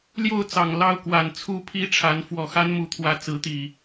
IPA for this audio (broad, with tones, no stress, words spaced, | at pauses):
ljo˥˨ʊ̯t͡sɑ˨˩ŋ lɑ˥˨ʊ̯kwa˨˩n t͡sʰu˦pʰi˦ ʈ͡ʂʰa˨˦n fwɔ˨˩xa˦nmu˨˦t̪ʰwä˨˦ t͡sɹ̩˨˦t̪i˨˩